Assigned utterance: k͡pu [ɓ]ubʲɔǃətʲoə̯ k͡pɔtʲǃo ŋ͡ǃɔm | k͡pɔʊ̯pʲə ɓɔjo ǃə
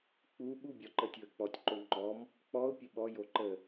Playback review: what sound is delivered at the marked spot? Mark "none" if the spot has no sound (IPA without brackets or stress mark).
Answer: ɓ